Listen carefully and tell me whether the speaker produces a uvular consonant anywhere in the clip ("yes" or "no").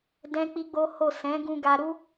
no